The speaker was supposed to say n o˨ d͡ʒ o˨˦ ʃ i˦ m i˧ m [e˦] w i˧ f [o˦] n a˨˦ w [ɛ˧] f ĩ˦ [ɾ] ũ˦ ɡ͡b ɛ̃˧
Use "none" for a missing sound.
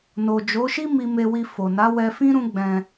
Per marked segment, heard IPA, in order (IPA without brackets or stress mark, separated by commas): e˧, o˨, ɛ˧, ɾ